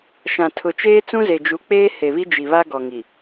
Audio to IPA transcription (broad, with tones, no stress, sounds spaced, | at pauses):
ʃ ã˨ tʰ ʊ˨ t͡ʃ eː˦ t͡s ũ˦ z e˨ d͡ʒ u˨˦ k͡p eː˦ h e˨ β i˦ d͡ʒ i˨ β a˦ ɡ ɔ˨ ŋ i˨